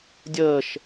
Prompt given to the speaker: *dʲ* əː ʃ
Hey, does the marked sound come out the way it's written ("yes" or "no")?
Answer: yes